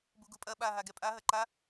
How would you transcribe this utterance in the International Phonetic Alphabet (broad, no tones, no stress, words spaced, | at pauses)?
buɡupʼɐ ɓa ɦaɡɛpʼa ɦɐǃa